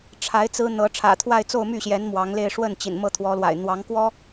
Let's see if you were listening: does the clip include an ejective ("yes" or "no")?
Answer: no